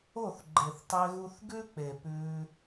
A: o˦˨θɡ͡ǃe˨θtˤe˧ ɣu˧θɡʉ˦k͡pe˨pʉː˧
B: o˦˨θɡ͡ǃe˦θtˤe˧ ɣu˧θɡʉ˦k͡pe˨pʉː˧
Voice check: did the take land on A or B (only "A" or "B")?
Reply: A